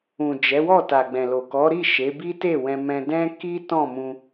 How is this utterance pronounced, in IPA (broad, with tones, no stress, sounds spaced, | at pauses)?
ũ˨ d͡ʒ ɛ˨˦ w ɔ˦˨ t a˨ ɡ͡b ɛ̃˨ l o˨ k ɔ˨˦ ɾ i˦˨ ʃ e˨˦ b i˦ t e˦˨ w ɛ̃˧ m ɛ̃˧ d ɛ̃˦ k i˦ t ɔ̃˦˨ m ũ˧